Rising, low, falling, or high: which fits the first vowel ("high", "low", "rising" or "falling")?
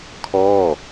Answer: falling